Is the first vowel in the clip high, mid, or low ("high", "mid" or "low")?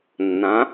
low